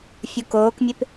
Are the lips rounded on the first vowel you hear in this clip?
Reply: yes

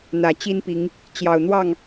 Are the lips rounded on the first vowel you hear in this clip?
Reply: no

